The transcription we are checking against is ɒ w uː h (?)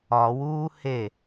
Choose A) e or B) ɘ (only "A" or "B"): A